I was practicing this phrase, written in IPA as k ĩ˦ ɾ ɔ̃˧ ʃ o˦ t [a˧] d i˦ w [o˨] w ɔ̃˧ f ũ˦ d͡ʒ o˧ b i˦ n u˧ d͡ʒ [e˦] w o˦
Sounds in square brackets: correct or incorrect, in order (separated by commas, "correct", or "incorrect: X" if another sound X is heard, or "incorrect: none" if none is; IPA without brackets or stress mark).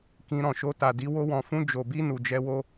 correct, incorrect: o˦, incorrect: ɛ˦